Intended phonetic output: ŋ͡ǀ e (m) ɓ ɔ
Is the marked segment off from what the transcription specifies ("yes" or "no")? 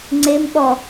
no